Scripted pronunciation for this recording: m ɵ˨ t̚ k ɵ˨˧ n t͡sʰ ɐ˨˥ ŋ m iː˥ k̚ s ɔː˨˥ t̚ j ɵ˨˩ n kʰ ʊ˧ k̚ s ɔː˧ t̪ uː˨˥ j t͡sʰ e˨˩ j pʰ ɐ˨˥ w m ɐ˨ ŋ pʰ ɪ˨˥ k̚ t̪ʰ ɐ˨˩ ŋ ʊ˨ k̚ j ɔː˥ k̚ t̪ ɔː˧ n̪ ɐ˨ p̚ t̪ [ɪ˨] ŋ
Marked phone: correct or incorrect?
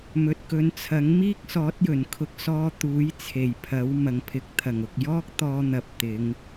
incorrect